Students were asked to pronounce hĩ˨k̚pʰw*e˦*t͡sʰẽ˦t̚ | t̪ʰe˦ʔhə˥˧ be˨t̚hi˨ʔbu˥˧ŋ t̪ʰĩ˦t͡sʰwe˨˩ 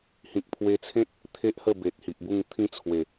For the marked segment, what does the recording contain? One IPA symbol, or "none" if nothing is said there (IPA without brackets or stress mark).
e˧